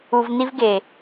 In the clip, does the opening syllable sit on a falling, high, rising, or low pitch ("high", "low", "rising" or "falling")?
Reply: low